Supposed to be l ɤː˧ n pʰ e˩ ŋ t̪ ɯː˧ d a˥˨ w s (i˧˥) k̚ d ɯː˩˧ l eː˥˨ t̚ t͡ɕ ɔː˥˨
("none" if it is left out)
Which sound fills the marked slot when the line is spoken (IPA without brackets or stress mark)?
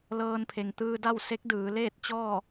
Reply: e˧˥